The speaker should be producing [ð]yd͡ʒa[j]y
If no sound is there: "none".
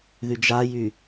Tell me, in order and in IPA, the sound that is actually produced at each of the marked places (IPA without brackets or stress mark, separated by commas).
ð, j